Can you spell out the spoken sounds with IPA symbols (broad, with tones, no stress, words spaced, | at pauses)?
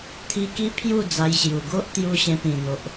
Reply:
t̪ʰi˧ki˦pʰju˥˧ d͡za˧jɕju˨˩ ɡo˦ʔt̪ju˧ ɕẽ˧pĩ˨˩n̪o˨ʔ